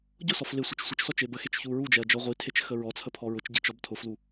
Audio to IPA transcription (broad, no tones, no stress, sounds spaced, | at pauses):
ɟ ʊ s ɔ f l e sʷ ə t͡ʃ sʷ ə t͡ʃ s ɔ t͡ʃ e b ə x e t͡ʃ ç u ɹ u d͡ʒ ɛ ɐ̯ d͡ʒ ɔ ʁʷ i tʰ e t͡ʃ x ə ɹ ɔ t͡sʰ ə pʰ ɔ ɹ ʊ t͡ʃ ɟ i t͡ʃ ɔ b tʰ ʊ f l u